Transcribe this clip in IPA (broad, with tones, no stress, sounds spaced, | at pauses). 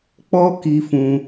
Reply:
k͡p ɔ˦ k i˧ f ũ˧